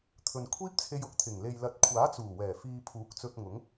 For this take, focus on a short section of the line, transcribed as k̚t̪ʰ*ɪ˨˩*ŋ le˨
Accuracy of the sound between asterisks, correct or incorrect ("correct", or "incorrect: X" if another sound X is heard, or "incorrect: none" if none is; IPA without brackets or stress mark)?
correct